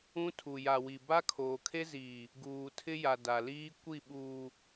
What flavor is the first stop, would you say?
aspirated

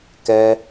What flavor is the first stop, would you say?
plain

